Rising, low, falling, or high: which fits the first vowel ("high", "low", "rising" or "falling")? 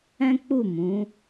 high